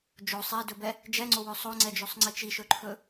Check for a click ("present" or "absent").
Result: present